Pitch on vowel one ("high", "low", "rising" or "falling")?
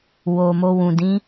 low